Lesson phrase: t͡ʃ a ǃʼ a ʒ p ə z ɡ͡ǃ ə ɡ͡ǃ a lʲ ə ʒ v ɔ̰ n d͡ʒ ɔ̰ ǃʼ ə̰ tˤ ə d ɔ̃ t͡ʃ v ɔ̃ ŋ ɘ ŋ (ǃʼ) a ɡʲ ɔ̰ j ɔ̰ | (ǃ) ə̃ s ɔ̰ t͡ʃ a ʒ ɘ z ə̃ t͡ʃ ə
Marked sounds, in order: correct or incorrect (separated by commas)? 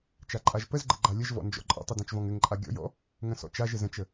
correct, incorrect